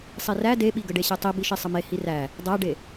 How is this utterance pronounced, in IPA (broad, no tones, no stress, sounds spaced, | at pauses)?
sˤ i r æ d e ɓ i ɡ ə ɖ e ɕ e tˤ i b i ʃ i sˤ ə m e h i r æ | dˤ æ ɖ e